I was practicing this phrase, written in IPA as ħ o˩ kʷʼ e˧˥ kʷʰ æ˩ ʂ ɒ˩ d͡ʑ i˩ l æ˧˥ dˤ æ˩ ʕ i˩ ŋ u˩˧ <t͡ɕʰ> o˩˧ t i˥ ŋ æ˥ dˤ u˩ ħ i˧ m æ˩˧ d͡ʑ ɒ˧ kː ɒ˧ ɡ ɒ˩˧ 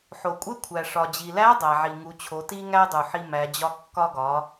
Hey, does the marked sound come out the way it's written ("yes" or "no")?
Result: yes